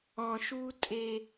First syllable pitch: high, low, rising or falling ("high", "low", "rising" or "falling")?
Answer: low